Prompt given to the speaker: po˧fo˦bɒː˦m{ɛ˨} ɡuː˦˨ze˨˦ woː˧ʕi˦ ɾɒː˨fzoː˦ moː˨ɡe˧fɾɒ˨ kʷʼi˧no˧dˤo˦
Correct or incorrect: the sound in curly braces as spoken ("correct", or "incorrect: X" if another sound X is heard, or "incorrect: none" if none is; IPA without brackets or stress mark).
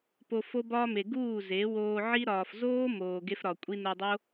incorrect: e˨